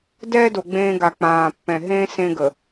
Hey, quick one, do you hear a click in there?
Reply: no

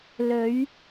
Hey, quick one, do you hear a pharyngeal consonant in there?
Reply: no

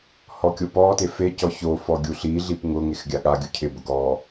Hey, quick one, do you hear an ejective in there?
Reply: no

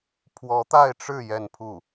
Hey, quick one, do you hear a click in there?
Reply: no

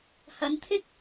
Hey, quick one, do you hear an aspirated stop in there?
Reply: yes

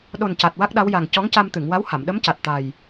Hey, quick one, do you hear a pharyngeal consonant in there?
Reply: no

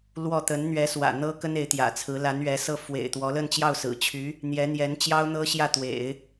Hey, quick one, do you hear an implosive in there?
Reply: no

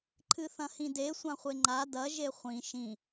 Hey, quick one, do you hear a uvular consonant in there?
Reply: yes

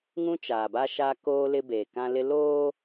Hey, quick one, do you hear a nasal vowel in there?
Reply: yes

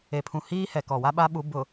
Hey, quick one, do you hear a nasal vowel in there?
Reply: yes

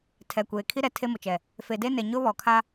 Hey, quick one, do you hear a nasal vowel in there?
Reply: no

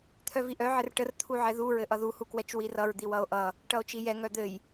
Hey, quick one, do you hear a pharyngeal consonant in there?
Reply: yes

